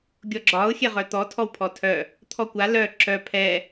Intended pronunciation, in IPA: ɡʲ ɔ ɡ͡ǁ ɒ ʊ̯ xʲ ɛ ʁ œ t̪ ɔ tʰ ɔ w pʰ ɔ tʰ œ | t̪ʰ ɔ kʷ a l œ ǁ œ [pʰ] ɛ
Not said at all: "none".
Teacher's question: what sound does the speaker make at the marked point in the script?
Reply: pʰ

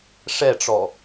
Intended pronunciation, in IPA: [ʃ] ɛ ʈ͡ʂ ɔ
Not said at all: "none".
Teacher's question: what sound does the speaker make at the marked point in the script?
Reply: ʂ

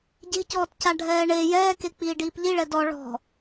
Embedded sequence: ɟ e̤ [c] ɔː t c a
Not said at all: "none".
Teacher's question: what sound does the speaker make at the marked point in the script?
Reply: c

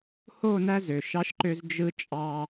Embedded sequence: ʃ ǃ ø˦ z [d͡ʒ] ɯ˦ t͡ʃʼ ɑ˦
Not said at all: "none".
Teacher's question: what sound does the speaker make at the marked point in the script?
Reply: d͡ʒ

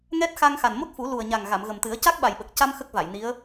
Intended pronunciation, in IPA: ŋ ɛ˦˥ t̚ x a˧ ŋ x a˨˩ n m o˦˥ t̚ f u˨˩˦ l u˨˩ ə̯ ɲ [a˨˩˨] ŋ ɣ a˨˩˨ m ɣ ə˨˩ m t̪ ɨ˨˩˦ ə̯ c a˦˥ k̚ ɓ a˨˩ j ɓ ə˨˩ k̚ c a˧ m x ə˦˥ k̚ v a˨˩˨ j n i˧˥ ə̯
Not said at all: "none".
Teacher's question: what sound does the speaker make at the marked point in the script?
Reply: a˨˩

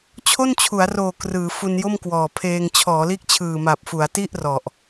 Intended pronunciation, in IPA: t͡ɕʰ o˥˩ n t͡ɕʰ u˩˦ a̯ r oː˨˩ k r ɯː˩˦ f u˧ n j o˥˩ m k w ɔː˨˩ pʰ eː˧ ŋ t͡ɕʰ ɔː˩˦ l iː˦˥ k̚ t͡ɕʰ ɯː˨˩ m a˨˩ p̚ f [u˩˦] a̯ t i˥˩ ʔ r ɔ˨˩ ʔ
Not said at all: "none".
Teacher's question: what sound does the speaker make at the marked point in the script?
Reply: u˩˦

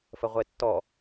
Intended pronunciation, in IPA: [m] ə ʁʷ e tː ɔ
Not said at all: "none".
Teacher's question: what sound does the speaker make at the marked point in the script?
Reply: f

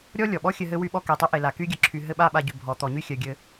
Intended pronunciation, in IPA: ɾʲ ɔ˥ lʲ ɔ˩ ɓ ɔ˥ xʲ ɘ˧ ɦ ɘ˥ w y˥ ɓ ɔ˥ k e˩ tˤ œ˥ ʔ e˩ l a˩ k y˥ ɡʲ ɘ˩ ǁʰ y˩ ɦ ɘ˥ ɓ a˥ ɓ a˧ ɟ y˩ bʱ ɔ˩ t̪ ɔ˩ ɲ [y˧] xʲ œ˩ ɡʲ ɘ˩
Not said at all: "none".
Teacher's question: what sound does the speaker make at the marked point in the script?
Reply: y˥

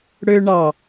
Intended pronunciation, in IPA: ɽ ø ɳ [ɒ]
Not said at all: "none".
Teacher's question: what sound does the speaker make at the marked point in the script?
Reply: ɑ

